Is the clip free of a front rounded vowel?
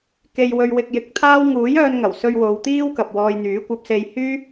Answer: no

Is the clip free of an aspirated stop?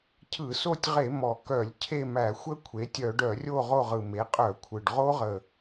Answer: no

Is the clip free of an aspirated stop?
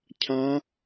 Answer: no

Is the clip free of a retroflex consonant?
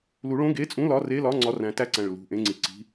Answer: no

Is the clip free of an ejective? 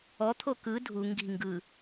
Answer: yes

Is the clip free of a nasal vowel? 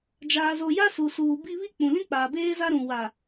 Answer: no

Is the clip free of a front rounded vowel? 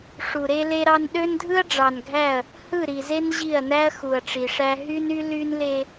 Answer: no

